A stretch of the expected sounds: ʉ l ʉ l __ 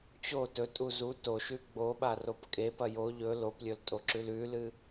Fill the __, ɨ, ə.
ɨ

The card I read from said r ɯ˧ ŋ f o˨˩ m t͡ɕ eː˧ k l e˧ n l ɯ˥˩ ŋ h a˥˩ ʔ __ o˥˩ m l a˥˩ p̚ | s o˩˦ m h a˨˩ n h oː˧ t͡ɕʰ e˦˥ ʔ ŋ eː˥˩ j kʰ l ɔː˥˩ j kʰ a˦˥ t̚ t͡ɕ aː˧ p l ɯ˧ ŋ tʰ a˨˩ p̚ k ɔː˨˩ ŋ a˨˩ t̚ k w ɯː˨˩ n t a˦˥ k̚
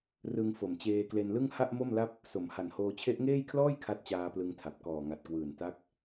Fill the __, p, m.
m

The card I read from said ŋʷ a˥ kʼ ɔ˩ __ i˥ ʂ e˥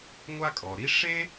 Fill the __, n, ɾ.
ɾ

